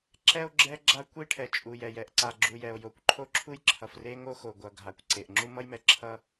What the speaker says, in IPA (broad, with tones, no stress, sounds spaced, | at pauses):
ǁ ɛ˥ o̯ ɡ͡ǁ ɛ˥ ɡ͡ǁ a˥ kʷ i˥ ʈʰ ɛ˩ t͡ʃʼ u˩ j ɛ˩ j ɛ˩ ʔ ǀ a˩ ɡ͡ǁ u˩ j ɛ˩ o̯ j o˩ kʷ ǃʰ o˥ ǁʰ u˥ j ǁʰ ʌ˩ f r e˥ ŋ o˥ x o˩ ɡʷ ʌ˩ ɡʱ a˩ kʷ ǀ e˩ ʔ ŋ͡ǁ u˥ m ʌ˥ j m ɛ˩ ǁʰ ʌ˥